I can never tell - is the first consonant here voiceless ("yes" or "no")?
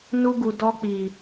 no